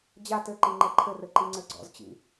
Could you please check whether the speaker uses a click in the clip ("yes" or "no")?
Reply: yes